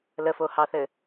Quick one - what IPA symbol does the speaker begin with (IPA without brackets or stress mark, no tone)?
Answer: l